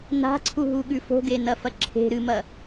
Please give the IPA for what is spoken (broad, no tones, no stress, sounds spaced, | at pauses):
n a̤ ǀʰ u ɦ u ɠ ʉ f o̤ ɡ e n ɐ f ɐ ǁʰ e̤ ɾ ɨ m ɐ